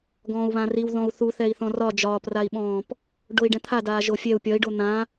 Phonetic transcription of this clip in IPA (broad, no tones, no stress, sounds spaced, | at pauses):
ɡ ɔ̃ː u̯ β ã r i w ð ɔ̃ u̯ θ u θ ɛ i̯ θ ɔ̃ r ɒ d͡ʒ ɒː p r a i̯ ɓ ɔ̃ː p | ɖ o i̯ ɖ ɛ̃ t̪ʰ a d aː ʒ o fʲ ɛ u̯ pʲ ɒ i̯ ɖ o n̪ ã